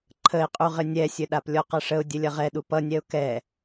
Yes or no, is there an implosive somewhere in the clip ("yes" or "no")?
yes